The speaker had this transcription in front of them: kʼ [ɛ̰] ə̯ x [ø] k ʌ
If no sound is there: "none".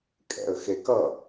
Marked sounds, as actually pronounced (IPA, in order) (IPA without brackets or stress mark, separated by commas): ɛ̰, e